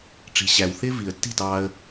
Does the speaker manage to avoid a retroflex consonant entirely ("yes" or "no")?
no